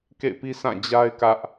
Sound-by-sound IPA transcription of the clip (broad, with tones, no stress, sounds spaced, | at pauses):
k ḛ˦˨ ɪ̯ p i˦ s ã˦˨ d͡ʑ a˦ ɪ̯ k ä˦ ʔ